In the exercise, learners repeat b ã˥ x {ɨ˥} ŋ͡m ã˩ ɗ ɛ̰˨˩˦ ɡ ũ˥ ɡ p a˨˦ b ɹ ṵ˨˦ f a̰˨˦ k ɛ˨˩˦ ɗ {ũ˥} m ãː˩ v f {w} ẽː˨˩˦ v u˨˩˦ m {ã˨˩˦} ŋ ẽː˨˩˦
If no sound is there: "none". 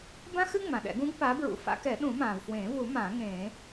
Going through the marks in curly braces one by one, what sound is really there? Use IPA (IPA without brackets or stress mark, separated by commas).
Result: ɨ˥, ũ˨˩˦, w, ã˨˩˦